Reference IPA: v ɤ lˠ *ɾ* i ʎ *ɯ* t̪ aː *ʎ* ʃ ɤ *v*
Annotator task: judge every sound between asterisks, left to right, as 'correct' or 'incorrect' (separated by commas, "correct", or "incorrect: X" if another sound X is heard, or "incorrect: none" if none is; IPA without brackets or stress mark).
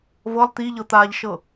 incorrect: t̪, incorrect: ɤ, correct, incorrect: none